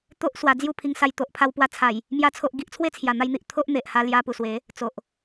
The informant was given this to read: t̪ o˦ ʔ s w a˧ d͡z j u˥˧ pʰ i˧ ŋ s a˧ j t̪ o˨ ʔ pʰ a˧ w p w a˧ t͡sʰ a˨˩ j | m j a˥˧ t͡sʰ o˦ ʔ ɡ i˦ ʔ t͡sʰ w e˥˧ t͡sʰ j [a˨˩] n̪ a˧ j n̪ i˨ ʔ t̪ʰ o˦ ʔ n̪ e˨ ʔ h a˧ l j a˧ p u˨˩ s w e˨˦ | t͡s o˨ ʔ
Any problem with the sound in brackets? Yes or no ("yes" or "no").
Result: no